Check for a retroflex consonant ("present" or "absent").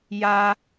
absent